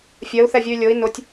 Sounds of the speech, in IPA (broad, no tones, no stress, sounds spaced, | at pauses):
fʲ ɜ u̯ θ ɛ vʲ u y̯ lʲ o i̯ n ʊ tʲ